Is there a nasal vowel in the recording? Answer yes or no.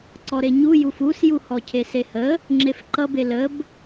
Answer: no